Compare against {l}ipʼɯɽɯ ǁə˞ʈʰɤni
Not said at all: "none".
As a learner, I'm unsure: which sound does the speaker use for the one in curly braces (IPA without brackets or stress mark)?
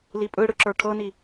l